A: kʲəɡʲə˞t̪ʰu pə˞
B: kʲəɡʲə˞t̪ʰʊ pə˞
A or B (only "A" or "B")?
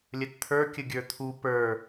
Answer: A